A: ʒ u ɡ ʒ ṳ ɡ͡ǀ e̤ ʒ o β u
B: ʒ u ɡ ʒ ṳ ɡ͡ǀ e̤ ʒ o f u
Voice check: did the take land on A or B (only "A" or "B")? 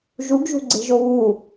A